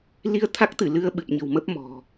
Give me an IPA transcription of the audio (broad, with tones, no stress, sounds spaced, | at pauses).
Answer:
l i˧ ə̯ t̪ʰ a˦˥ k̚ t̪ ɨ˧˩ l ɨ˧ ə̯ ɓ ɨ˨˩ p̚ ɲ ə̤˨˩ w m ə˦˥ p̚ m ɔ̤˨˩